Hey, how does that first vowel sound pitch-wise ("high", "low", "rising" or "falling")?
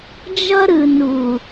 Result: high